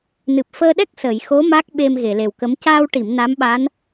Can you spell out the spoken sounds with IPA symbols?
n ɨ˨˩ p̚ f əː˧ ɗ ɛ˦˥ k̚ s ə˨˩˨ j x o˧˥ m a˦˥ k̚ ɓ e˧ m ɣ e˨˩˨ l e˨˩ w k ə˧˥ m c aː˧ w ʈ i˨˩˨ m n a˧˥ m ɓ a˧˥ n

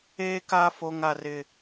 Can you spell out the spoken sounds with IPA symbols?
eː˦ k aː˦ f o˦ ŋ a˦ r ɪ˦

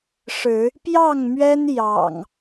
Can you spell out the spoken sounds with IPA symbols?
ʂ ɻ̩˨˦ | p j ɑ˥˨ ŋ m ɥ ɛ˦ n j ɑ̰˨˩ ŋ

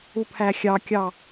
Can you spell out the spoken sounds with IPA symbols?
u pʰ æ xʲ ɑ kʲ ɑ

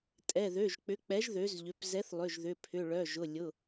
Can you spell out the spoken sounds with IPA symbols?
tʼ ɛ˩˧˩ ð ø˩˧˩ ʒ k͡p ʏ˩˥ k͡p ɛ˩˥ ʒ ð ø˩˥ z ʎ ʏ˩˧˩ p z ɛ˩˥ θ lˠ ʏ˩˧˩ ʒ ð ʏ˩˧˩ pʰ ʏ˩˧˩ ɭ œ˩˧˩ ʒ ʊ˩˧˩ lʲ ʊ˩˧˩

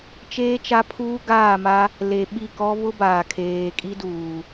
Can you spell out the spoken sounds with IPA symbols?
t͡ʃ eː˦ t͡ʃ a˦ pʰ uː˦ ɡ aː˦˨ m a˦ | l e˨ ɓ i˦˨ k ɔ˦ β ʊ˦ b aː˨ kʰ eː˨ kʼ i˦ d uː˨

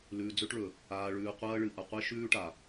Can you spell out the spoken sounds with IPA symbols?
l ʉː˨ d͡z ɵ˦ ʈ ɭ ɵ˨ | aː˨ ɭ ʉː˨ qʷ ɐː˦ ɭ ɨ˨ ʔ ɐ˨ qʷ e˦ ʃ ʉː˦ ʈ a˨

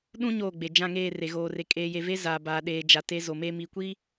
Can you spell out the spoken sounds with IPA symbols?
ɗ ũ˦ ɲ oː˦˨ ɡ͡b e˨ d͡ʒ ã˦˨ ŋ eː˦˨ r e˨ ɣ oː˨ r e˨ kʼ eː˨ j e˨ v e˦ z aː˨ b aː˨ ɗ eː˨ d͡ʒ a˨ t e˦ z o˨ m eː˦ m iː˨ kʷ iː˦

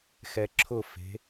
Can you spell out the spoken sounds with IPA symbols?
x ɛ ǁʰ ʊ f e̤

